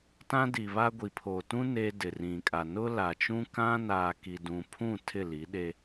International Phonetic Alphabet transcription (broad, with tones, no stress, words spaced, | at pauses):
tã˦di˨βa˦ ɡʷi˨pʰoː˨tũ˦ neː˦dɪ˨rĩ˨kʼa˨ nʊ˦la˨t͡ʃũ˦ kã˦naː˨ ki˨dũ˨ pʰũ˦˨ tʰɪ˦˨li˨˦ɗe˦